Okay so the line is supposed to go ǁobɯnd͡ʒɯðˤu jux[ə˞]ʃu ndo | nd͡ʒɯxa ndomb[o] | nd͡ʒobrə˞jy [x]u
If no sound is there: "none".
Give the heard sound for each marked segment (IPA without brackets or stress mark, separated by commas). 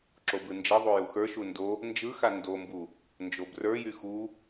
ə˞, u, x